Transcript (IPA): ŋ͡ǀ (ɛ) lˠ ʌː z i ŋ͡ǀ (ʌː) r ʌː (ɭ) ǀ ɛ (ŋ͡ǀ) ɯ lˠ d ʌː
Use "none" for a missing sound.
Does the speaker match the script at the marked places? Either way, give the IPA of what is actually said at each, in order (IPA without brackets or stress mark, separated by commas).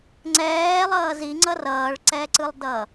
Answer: ɛː, ʌ, ɭ, ǀ